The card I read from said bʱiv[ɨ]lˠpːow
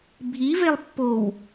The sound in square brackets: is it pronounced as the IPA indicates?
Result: no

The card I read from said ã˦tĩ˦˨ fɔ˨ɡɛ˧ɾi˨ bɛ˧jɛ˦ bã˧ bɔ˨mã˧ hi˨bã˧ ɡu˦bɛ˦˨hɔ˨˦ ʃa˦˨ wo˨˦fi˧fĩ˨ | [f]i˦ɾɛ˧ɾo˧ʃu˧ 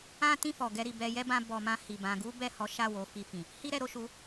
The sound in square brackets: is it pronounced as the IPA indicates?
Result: no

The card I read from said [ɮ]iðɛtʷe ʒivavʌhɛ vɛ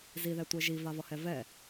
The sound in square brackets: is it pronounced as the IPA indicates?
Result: no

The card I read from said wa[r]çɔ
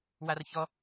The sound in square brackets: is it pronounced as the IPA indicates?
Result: yes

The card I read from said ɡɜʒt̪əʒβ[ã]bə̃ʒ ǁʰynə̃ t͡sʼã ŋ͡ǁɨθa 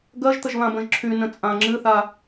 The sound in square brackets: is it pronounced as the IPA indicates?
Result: yes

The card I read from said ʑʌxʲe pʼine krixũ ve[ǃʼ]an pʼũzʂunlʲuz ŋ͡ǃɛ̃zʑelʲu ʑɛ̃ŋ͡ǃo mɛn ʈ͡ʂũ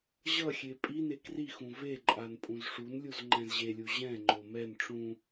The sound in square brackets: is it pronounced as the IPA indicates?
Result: yes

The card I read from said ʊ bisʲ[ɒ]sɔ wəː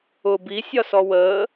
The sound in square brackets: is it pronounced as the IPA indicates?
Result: yes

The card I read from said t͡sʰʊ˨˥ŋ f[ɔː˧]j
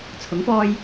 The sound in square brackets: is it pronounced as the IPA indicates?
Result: yes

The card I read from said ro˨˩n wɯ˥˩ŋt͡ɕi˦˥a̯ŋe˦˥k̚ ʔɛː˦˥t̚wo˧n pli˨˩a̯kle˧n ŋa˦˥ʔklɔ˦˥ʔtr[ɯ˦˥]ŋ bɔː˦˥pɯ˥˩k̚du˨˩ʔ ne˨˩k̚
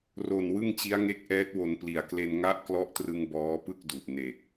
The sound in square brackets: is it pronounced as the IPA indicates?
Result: no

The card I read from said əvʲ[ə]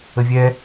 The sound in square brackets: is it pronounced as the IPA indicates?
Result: no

